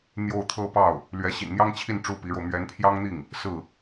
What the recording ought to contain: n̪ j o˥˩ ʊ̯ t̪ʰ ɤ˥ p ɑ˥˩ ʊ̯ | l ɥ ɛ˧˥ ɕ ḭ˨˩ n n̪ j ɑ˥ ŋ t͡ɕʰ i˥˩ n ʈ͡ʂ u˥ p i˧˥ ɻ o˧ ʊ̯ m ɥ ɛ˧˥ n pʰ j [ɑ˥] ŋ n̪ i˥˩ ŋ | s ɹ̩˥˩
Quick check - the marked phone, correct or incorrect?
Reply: correct